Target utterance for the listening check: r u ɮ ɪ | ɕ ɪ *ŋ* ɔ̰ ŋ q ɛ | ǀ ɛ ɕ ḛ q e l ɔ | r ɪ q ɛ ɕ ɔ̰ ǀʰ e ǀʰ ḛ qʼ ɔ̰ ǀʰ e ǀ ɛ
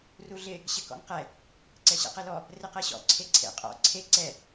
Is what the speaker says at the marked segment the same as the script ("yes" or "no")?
no